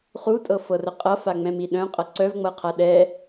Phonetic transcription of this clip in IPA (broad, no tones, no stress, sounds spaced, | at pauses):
χ u tʼ ɤ f ɤ r ə qʼ ʌ f a ŋ͡m ɛ̃ m i ɗ œ̃ qʼ ʌ ǀ œ v ŋ͡m ɤ qʰ a ɗ ɛ